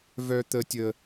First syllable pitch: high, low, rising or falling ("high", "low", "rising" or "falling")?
high